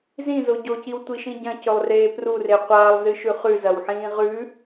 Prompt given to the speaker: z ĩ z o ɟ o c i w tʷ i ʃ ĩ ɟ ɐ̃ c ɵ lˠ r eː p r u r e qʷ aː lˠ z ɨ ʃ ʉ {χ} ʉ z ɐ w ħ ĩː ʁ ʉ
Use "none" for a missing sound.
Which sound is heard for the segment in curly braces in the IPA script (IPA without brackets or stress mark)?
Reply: χ